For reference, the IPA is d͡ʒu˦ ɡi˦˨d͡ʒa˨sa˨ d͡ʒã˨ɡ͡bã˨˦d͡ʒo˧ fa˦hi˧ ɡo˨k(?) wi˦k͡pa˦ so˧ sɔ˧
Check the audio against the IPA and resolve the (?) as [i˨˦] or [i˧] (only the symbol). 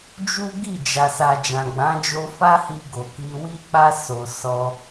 i˧